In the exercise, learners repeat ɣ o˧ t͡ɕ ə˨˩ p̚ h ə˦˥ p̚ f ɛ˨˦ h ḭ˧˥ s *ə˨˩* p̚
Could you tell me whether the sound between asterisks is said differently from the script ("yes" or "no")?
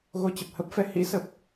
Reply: no